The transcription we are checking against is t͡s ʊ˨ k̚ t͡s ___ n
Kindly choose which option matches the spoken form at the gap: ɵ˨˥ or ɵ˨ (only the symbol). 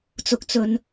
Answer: ɵ˨